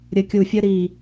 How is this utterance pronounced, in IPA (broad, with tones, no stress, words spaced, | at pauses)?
ɾʲə˧˩kʲu˧˩fʲə˥ ɾi˧˩